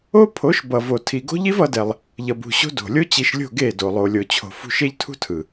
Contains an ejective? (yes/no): no